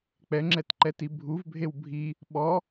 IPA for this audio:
k͡pɛŋ͡ǁɛtǃɛti bʱuvbʱew bʱi | ɓɔ

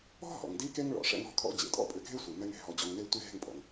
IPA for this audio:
ɔ̤˦ ɦɔ̰˨ŋdi˦ke˦ŋ ɭɔ̰˨ʂɛ̰˧ŋ ɔ̤˧kʰɔ̰˧ d͡ʑḛ˨tʼɔ̰˦pʼʏ˧ɡʱe˦ sʷi˨mɛ˦ŋe̤˧ ɦɔ˨d͡ʑɔ˨ŋne˧ tʷi˦˨ɦe̤˦˨ŋpʼɔ̰˨ŋ

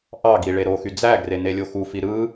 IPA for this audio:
ʔɑɡi ɭeɾoxy d͡zæɡre nelʲoxufi ɾɯ

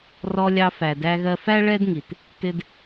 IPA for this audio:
rɔ˧lʲɑ˧fæ˩ dæ˧ɣɜ˧fæ˥ ɭɛ˥dŋi˩t | tɪ˧d

